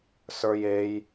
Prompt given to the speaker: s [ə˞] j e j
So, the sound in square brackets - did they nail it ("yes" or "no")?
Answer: yes